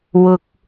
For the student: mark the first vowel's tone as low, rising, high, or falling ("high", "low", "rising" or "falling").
high